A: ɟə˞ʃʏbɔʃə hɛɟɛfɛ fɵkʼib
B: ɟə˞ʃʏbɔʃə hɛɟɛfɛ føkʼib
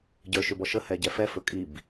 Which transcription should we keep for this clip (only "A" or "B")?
A